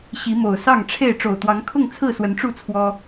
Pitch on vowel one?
rising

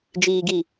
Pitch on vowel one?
low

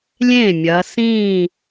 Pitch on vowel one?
falling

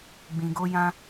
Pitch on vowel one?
low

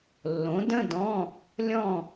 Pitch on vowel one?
rising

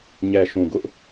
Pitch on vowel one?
low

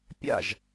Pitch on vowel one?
falling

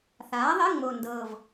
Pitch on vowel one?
rising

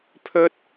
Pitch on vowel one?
high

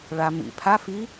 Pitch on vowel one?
low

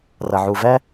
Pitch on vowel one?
low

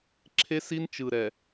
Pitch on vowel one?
high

